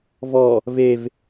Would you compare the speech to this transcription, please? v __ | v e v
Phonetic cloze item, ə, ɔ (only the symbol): ɔ